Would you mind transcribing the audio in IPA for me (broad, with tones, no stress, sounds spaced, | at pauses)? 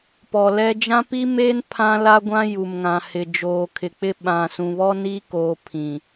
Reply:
p ɔ˨ l ɛ˦ d͡ʒ ã˦ p i˦ m eː˦ n pʰ ã˦ l a˦ ɡʷ ã˦ j u˨ m ŋ ã˨ h ɪ˨ d͡ʒ oː˨ kʰ ɪ˨ k͡p ɪ˦ ɓ ã˨ s ũ˨ β ɔ˦ n iː˦ k oː˨ pʰ ĩ˨